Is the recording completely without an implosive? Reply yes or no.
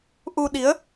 no